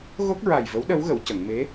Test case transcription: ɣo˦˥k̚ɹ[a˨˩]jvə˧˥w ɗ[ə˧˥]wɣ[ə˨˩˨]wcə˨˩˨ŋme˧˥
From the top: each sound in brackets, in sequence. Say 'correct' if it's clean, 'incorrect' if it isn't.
correct, correct, correct

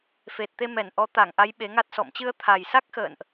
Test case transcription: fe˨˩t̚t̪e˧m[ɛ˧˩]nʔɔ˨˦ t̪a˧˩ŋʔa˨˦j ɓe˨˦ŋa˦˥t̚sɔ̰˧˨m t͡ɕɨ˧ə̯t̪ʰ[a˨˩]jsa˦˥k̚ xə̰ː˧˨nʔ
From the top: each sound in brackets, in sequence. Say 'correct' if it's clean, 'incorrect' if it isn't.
correct, correct

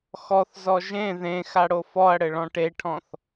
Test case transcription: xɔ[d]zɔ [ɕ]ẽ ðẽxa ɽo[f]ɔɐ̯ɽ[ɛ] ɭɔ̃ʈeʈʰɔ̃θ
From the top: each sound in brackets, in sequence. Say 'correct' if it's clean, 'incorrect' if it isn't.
incorrect: θ, incorrect: ʒ, correct, incorrect: ɘ

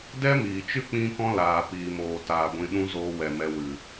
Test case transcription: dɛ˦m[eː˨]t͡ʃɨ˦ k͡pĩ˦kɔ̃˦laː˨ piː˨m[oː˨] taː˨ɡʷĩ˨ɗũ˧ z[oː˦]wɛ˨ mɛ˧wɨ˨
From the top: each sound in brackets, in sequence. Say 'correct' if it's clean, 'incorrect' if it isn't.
incorrect: iː˨, correct, incorrect: oː˧

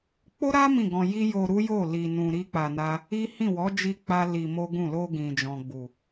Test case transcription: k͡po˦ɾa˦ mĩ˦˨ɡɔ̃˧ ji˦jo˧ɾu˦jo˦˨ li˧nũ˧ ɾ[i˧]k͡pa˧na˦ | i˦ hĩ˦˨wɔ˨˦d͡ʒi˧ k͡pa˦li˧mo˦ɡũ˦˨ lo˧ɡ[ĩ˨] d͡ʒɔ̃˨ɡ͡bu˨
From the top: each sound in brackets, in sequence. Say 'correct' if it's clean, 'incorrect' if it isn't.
incorrect: i˦, correct

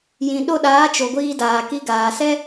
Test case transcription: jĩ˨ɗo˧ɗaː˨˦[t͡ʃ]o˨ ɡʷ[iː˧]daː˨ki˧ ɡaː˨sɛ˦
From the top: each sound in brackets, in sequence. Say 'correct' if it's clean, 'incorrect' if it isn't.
correct, correct

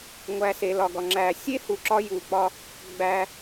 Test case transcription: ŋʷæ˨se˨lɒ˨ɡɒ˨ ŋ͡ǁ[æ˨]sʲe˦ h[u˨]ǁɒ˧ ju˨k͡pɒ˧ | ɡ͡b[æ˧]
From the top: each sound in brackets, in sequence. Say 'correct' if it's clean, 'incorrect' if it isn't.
correct, correct, correct

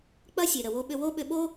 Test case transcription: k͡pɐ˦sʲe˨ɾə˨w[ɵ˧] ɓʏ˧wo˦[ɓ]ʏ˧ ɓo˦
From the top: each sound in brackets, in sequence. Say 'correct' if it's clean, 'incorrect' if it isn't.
incorrect: o˧, correct

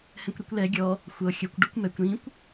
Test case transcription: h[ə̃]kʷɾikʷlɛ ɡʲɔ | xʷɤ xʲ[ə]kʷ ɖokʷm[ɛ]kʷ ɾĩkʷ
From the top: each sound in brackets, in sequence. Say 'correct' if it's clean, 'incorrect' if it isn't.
incorrect: ɛ̃, correct, correct

